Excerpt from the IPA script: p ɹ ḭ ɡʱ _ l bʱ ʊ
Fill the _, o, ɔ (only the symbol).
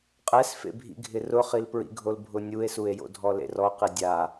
o